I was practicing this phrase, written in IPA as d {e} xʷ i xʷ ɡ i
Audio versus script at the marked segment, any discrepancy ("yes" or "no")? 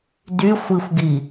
yes